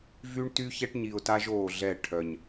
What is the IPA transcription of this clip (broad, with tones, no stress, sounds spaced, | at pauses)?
v y˦ ɳ t y˦ ç ɛ˦ ʈ ɲ i˨ ʊ̯ t a˦ ʒ oː˦˨ ɮ ɛ˦˨ ʈʰ œ˨ ɲ